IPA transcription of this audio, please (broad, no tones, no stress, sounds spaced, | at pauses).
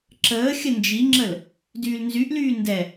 ǁ əː xʲ ə n d͡ʒ i ŋ͡ǁ ə l | d yː l n z y ʔ l yː n d ɛ